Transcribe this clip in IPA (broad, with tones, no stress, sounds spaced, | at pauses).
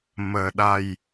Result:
m əː˨˩ ɗ a˨˩ j